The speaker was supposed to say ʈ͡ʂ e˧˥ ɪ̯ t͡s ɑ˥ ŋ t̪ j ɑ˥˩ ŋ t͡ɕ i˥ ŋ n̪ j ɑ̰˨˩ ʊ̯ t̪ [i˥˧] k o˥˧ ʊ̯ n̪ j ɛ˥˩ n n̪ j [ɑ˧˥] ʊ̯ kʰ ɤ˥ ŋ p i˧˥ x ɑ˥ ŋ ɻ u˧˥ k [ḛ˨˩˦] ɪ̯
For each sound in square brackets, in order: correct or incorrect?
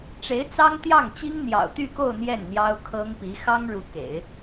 incorrect: y˥˧, incorrect: ɑ˥, correct

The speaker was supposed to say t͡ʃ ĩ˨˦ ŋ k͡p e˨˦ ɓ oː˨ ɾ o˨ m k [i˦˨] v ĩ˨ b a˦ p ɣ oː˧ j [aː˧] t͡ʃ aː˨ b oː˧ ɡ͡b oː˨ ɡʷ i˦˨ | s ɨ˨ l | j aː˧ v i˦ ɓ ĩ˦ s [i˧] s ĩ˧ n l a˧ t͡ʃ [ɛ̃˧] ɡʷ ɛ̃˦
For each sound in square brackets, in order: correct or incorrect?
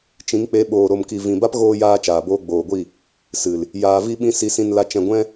incorrect: i˨, correct, correct, correct

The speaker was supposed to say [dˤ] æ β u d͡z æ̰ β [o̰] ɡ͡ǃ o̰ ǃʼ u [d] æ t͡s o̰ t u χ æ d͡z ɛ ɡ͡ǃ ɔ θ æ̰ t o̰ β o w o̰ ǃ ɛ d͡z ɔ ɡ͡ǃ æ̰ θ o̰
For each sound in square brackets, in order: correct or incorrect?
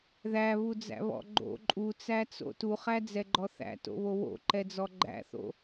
incorrect: ð, incorrect: ɔ̰, incorrect: t͡s

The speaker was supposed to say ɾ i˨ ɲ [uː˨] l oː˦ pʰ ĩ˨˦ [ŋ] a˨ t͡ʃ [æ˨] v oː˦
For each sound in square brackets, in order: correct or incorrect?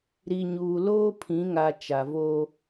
correct, correct, incorrect: a˨

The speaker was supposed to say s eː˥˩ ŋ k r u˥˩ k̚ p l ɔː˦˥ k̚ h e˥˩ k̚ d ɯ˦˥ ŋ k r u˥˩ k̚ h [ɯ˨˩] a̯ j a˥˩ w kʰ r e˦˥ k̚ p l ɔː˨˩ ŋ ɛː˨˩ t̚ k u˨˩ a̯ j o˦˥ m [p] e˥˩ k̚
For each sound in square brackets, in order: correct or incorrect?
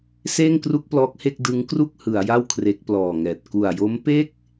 incorrect: ɯ˩˦, correct

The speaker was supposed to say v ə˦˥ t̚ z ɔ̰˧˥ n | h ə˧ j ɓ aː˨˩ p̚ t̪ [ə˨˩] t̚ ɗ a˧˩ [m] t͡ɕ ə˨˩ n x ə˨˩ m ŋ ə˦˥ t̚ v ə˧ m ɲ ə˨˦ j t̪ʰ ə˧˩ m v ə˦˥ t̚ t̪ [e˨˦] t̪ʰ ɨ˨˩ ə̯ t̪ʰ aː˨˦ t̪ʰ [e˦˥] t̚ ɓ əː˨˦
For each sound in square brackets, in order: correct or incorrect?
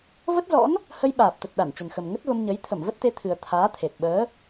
correct, incorrect: n, correct, incorrect: e˨˩

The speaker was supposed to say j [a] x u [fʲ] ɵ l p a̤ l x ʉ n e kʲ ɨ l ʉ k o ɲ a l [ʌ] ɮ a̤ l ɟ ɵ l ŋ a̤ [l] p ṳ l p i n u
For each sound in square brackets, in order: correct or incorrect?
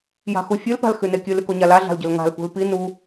incorrect: a̤, correct, incorrect: a, correct

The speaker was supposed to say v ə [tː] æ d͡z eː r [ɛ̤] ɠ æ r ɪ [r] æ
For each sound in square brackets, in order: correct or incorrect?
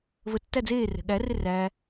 correct, correct, correct

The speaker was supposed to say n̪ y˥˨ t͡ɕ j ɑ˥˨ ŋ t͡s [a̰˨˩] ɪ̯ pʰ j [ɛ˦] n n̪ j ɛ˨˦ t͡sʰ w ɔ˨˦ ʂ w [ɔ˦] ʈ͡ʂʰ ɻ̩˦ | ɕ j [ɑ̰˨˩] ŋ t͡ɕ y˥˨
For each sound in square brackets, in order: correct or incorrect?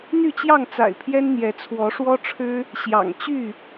correct, correct, correct, correct

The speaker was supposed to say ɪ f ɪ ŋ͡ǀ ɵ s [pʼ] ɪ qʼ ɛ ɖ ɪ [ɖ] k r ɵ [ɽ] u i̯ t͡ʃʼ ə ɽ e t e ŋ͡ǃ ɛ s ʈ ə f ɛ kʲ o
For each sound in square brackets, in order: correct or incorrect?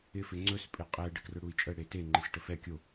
correct, incorrect: none, correct

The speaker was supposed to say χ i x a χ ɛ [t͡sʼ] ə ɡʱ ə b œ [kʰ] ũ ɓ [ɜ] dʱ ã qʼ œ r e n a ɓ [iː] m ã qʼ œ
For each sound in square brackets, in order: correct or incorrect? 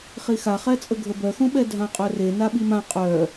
correct, incorrect: x, incorrect: ɛ, incorrect: i

